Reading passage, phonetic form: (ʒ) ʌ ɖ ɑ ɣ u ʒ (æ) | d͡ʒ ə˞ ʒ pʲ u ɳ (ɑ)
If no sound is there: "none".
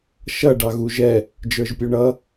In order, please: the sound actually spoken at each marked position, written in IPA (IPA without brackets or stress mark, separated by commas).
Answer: ʃ, ɛ, ʌ